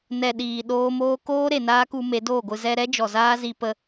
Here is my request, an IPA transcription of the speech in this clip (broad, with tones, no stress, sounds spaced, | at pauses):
n ɛ˨ ɗ iː˨ ɗ oː˧ m oː˧ k oː˦ ɾ e˨ n aː˦ k u˧ m e˨˦ d oː˦˨ ɡʷ ɨ˧ z ɛ˧ ɾ ɛ˦ d͡ʒ ɔ˨ z aː˦ z i˧ p ə˧